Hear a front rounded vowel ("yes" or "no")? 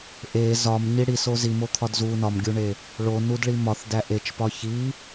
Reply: no